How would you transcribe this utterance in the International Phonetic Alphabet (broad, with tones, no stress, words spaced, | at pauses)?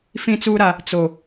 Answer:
fĩ˦t͡suː˦ɾa˦ | t͡so˦